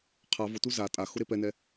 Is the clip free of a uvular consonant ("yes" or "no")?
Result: no